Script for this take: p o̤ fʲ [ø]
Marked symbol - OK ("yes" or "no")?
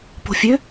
yes